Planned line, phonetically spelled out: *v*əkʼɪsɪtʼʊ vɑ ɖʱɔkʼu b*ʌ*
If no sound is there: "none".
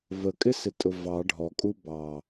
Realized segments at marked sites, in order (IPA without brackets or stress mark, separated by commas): v, ɑ